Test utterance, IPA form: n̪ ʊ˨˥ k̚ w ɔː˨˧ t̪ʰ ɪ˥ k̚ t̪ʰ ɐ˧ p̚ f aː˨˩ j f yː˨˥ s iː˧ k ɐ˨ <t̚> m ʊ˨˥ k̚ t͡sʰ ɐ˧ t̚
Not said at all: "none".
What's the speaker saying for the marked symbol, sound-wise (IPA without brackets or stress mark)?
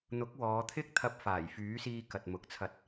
t̚